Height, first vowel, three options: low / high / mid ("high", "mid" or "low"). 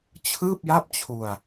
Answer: high